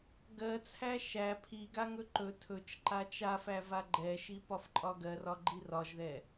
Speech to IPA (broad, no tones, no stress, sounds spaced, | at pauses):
ɡ ɜ t͡sʰ æ ʃ æ pʰ i ɡ a ŋ ɵ ǃ ɵ tʰ ɵ t͡ʃ ǃ a t͡ʃ a f æ v a ɡ͡ǃ ɛ ʃ i p ɒ f ǃʼ ɒ ɡ ɜ r ɒ ɡ͡ǃ i r ɒ ʒ ð ɛ